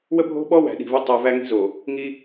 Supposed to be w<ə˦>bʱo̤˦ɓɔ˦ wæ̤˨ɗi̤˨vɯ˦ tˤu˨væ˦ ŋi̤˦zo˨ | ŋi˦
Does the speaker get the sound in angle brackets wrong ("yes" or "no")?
no